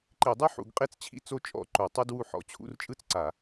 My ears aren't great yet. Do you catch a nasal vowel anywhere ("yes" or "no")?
no